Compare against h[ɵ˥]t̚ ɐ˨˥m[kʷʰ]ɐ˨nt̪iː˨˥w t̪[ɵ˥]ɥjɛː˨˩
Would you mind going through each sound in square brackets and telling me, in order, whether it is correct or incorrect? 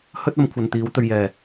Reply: correct, correct, incorrect: ɵ˧

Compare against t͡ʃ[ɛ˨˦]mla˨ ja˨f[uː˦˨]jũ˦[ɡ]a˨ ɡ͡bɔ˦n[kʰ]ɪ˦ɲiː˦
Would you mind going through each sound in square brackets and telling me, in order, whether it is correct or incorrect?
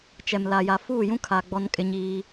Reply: incorrect: ɛ˨, correct, incorrect: kʰ, incorrect: kʼ

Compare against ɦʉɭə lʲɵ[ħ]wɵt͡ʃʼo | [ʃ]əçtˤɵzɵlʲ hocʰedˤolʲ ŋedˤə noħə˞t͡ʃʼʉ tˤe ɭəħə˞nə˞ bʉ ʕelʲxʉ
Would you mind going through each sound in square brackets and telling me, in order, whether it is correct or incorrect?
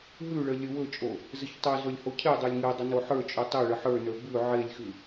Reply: incorrect: none, incorrect: z

